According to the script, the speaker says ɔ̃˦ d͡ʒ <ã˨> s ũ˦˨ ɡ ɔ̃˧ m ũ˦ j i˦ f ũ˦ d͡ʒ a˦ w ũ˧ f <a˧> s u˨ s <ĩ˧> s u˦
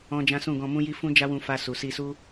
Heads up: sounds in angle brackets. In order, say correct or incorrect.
incorrect: ã˦, correct, incorrect: i˧

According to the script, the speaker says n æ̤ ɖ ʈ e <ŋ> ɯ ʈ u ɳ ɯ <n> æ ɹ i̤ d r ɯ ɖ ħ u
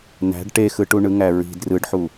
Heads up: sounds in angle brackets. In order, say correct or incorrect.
incorrect: x, incorrect: ŋ

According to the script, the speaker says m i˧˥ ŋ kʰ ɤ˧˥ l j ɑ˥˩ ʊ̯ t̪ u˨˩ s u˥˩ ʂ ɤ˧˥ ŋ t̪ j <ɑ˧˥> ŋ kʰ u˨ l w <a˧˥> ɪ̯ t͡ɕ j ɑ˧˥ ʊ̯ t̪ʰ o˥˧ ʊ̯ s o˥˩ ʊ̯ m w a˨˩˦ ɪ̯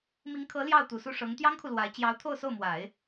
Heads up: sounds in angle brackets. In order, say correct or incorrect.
incorrect: ɑ˥, correct

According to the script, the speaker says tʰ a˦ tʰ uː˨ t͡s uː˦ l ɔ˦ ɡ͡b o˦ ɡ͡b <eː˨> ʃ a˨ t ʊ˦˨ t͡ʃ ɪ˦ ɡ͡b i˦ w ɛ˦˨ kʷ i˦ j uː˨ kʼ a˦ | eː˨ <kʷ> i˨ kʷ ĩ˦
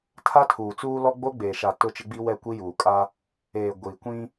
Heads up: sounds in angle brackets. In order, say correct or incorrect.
correct, incorrect: ɡʷ

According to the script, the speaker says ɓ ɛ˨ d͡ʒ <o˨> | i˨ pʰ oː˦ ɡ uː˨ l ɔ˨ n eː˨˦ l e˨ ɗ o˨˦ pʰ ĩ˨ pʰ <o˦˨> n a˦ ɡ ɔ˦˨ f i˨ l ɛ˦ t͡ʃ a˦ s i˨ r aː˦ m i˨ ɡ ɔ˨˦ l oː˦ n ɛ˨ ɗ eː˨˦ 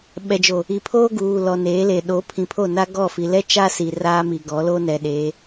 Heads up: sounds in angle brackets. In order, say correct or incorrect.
correct, correct

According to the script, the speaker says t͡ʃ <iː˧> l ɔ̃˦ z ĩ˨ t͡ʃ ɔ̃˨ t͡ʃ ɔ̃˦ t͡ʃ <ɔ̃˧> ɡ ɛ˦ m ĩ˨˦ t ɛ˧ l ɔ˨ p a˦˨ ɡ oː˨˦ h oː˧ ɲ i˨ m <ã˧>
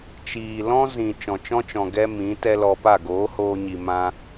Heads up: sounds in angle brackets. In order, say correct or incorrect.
incorrect: iː˨, incorrect: ɔ̃˨, incorrect: ã˦

